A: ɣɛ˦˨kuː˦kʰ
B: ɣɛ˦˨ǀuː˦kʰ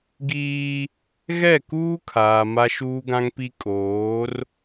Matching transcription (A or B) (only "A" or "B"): A